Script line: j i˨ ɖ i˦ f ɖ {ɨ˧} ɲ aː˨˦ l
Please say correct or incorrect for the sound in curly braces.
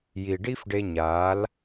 incorrect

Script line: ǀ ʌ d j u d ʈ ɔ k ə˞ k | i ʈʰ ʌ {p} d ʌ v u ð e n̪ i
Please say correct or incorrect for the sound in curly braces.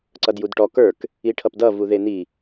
correct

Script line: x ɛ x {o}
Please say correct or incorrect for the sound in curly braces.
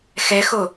correct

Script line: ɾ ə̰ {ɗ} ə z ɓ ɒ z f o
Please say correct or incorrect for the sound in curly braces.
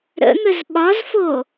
incorrect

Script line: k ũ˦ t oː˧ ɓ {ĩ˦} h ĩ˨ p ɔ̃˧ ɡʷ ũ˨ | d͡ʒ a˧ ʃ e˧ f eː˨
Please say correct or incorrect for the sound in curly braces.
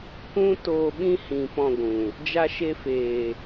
correct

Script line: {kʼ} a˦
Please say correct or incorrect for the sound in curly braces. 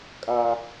correct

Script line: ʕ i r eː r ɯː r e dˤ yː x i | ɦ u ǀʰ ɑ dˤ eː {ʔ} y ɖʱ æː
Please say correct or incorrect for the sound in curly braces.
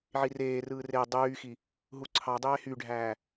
incorrect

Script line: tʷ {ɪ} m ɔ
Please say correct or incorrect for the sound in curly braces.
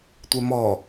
incorrect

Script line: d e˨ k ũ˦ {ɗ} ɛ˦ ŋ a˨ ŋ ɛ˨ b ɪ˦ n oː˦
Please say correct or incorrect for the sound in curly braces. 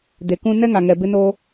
incorrect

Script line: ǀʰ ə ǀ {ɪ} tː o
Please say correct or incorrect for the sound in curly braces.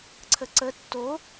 incorrect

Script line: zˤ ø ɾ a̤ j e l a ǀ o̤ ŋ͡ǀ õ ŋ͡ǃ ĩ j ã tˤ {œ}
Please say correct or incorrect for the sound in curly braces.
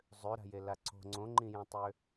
incorrect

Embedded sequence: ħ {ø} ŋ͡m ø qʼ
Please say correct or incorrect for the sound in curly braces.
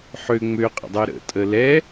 correct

